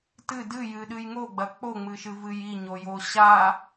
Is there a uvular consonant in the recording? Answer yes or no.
no